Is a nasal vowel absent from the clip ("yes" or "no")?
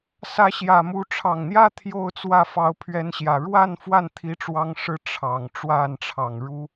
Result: yes